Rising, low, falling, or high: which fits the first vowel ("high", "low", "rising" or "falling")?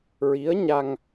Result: rising